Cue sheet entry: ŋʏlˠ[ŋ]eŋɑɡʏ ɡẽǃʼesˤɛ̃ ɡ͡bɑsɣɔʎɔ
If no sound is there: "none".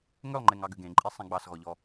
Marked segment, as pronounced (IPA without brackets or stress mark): ŋ͡ǃ